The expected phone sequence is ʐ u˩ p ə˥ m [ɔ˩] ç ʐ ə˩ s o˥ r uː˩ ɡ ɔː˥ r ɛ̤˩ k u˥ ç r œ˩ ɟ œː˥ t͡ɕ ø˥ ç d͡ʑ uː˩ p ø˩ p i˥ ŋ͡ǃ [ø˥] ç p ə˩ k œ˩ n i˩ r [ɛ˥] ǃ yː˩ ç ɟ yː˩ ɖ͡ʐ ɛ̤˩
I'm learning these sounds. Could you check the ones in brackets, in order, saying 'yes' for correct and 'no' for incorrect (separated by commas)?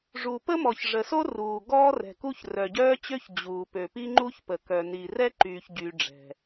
yes, no, yes